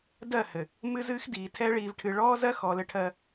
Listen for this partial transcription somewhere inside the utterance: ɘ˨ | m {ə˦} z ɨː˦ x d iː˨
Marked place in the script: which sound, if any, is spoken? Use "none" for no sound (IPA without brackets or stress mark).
ɨ˦